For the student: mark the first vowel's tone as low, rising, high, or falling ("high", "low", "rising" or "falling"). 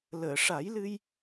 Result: low